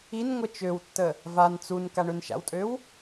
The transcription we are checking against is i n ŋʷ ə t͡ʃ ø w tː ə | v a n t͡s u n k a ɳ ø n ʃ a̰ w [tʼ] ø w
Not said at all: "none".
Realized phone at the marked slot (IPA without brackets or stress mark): tʼ